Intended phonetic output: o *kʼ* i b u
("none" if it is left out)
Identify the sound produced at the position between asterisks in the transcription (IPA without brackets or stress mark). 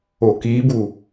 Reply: k